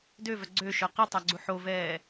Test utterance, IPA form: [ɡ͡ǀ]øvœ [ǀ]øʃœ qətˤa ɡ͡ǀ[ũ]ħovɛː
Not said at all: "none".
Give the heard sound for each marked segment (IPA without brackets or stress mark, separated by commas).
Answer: d, ɡ͡ǀ, u